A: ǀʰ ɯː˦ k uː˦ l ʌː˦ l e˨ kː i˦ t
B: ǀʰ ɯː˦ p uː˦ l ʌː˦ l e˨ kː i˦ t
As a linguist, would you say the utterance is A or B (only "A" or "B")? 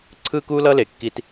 A